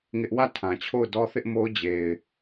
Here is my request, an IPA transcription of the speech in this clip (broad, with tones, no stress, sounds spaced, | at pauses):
ŋ ɪ˦ ʔ w ä˦˨ tʰ ã˨ t͡ɕʰ o˦˨ ʊ̯ d ɔ˦ θ ɪ˦ ʔ m o˦ ʊ̯ d͡ʑ e˨ ɪ̯